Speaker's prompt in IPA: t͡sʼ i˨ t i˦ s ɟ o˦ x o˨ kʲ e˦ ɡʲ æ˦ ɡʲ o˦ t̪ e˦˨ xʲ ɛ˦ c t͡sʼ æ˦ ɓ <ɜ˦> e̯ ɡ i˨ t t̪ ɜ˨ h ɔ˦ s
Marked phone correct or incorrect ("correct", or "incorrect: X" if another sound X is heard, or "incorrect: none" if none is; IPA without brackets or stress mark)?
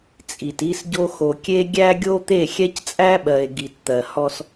incorrect: ɜ˨